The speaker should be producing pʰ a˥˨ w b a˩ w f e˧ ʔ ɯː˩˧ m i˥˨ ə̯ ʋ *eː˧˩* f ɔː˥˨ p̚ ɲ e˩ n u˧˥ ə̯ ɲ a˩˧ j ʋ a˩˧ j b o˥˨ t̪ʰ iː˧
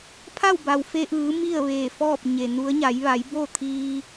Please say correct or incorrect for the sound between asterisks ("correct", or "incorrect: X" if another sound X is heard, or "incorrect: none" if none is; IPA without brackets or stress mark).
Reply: correct